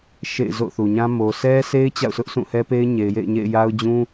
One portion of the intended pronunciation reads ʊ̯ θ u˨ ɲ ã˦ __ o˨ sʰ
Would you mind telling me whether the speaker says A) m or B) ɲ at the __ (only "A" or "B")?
A